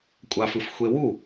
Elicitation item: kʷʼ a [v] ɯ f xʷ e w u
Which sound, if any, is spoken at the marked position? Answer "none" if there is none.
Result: f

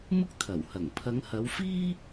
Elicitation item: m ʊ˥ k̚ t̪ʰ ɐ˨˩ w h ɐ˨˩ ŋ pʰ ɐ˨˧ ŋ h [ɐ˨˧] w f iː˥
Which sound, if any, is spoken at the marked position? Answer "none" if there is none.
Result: ɐ˨˧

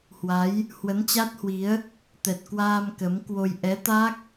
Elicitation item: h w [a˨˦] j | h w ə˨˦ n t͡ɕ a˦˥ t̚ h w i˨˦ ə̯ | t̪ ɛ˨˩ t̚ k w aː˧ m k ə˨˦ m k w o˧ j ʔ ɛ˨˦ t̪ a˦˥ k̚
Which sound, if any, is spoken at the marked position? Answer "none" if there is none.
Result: a˨˦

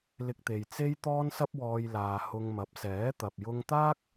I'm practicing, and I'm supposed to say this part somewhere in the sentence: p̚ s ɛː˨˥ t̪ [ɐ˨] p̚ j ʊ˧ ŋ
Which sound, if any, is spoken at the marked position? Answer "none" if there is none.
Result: ɐ˨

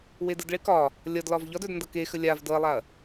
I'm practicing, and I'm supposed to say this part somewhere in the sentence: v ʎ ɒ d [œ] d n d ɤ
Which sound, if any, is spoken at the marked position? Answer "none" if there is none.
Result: œ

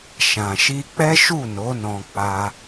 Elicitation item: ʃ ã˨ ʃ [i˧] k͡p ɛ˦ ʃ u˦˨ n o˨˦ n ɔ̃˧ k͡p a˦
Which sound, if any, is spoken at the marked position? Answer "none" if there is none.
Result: i˧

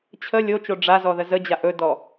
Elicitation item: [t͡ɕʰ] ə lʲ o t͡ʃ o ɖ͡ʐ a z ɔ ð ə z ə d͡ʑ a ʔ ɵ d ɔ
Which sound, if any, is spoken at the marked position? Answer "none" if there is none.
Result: t͡ɕʰ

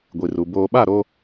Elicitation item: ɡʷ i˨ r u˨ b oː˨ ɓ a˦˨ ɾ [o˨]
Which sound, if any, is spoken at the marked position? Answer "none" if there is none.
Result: o˦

